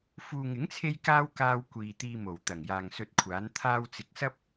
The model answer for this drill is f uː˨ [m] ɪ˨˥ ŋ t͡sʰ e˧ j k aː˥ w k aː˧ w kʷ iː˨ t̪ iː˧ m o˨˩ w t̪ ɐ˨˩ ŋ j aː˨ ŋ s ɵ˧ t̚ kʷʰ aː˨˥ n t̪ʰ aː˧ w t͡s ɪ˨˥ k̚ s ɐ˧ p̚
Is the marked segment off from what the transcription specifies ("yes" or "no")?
yes